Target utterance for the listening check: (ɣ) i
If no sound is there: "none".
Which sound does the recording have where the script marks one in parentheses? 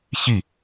ç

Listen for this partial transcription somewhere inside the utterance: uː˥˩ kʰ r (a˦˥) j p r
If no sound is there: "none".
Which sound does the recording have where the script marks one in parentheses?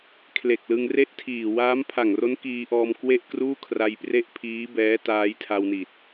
a˧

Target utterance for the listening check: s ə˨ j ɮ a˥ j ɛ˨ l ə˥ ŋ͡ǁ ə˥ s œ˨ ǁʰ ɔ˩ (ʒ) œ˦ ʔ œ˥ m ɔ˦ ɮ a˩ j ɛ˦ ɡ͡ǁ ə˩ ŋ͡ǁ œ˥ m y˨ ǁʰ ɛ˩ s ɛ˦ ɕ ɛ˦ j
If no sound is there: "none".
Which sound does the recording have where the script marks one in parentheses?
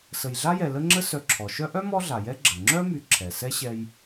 ʃ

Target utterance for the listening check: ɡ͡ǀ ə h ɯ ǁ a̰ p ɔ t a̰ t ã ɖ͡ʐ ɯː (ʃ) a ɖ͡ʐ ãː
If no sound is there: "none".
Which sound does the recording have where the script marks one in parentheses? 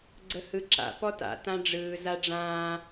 z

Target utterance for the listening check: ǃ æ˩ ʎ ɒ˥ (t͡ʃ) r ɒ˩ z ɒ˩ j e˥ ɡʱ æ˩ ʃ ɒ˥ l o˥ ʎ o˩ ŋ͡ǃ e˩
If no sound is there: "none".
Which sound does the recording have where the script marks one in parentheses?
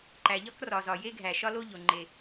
k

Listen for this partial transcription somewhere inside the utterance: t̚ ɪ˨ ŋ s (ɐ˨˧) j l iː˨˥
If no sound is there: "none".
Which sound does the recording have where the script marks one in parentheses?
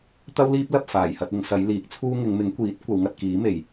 ɐ˨˧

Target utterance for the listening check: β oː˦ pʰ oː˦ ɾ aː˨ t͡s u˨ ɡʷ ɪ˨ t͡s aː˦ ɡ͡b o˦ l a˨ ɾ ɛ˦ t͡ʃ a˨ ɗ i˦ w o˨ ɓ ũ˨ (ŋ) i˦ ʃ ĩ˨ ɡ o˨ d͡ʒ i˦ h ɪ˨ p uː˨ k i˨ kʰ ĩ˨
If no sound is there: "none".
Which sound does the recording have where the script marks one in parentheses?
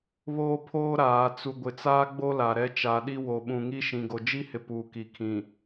ŋ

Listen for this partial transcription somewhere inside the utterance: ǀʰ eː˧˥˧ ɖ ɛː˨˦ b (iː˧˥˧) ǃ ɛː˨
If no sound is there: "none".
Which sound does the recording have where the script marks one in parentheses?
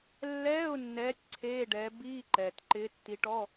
iː˧˥˧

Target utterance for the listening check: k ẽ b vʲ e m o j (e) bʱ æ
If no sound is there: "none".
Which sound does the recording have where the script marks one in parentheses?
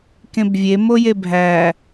e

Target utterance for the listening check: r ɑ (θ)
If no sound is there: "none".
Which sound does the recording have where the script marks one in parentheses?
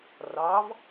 v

